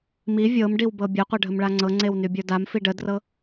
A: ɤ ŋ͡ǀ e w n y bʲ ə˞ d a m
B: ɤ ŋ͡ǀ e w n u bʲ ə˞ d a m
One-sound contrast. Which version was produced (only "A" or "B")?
A